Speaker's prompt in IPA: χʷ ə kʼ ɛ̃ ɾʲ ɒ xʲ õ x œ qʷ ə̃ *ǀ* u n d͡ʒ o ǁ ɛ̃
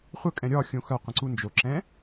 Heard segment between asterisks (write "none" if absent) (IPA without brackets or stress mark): ǀ